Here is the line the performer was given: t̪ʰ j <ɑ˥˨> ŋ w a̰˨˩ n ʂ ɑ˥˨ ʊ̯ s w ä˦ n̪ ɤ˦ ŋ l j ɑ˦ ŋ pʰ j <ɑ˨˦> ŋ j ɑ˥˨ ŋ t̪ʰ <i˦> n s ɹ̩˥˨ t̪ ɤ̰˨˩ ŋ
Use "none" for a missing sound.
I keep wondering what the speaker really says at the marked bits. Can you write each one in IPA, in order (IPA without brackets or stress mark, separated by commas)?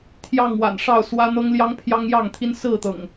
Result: ɑ˥˨, ɑ˦, i˦